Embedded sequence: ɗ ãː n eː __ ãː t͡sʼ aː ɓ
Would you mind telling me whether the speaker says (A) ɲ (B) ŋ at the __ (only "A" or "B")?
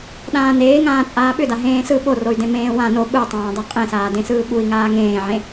B